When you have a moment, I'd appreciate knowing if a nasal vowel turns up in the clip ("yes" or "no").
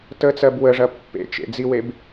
no